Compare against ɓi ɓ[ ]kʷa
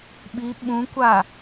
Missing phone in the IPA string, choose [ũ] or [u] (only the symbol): ũ